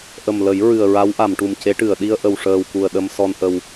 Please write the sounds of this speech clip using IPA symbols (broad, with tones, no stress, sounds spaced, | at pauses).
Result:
ʔ ə˨˩ m l ə˨˩˦ j ɹ ɨ˨˩ ə̯ ɹ a˧˥ w ʔ a˨˩˨ m ʈ u˨˩ m c e˧˥ ʈ ɨ˨˩˨ ə̯ ɗ i˧ ə̯ ʔ ə˨˩ w ʂ əː˨˩ w k u˨˩ ə̯ ɗ ə˧ m s ɔ˧ n ʔ ə˧ w